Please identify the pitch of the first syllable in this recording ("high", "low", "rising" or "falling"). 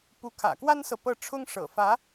rising